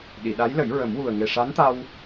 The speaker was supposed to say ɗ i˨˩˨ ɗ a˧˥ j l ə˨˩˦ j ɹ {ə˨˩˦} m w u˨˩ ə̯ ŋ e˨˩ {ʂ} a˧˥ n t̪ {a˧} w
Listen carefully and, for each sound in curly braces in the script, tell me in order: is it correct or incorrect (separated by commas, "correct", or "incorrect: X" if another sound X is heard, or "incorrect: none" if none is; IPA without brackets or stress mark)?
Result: correct, correct, correct